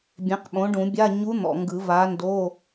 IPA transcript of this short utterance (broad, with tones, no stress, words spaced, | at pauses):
bʲẽ˩˥qɓõ˩˥ɖũ˨˩˦bʲa˧˥˧ ɲu˧˥n̪ɔ̰˨ŋɡɯ˨˩˦ va˧˥ndo˧˥˧